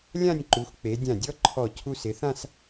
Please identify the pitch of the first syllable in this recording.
falling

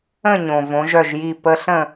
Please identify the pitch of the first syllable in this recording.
falling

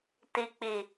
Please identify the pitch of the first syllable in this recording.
low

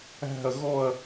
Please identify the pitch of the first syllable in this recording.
falling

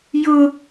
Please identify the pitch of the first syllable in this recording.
high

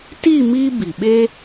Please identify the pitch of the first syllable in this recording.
falling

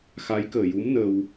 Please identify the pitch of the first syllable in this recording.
rising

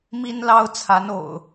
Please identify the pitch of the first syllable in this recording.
high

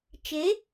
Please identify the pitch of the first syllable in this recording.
rising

